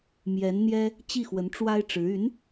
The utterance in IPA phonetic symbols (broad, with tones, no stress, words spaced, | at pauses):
mjɛ˧˥nn̪jɛ˥ | t͡ɕi˥˩xwə˧˥nʈ͡ʂwa˥ɪ̯ʈ͡ʂɻ̩˧˥ y˧˥n